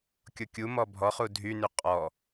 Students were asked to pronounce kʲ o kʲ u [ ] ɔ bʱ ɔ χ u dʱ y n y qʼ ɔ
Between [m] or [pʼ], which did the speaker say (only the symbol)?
m